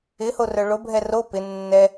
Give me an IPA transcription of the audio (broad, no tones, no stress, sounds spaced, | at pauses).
ɪ h o r œ ɭ o bʱ ɛ r o p ɪ nː ɛ